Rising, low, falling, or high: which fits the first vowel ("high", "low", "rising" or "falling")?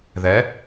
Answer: rising